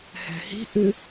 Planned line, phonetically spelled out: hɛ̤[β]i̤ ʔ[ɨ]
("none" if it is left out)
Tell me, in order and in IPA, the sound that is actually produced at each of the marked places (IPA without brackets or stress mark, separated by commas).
h, ɨ